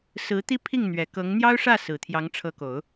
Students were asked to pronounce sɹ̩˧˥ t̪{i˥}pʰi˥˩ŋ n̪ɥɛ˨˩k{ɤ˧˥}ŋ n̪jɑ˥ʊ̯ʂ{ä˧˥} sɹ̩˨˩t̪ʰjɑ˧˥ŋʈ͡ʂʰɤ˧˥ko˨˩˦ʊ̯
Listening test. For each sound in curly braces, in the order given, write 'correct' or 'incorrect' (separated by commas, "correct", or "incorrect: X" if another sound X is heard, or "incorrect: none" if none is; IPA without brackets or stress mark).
correct, correct, incorrect: ä˥˩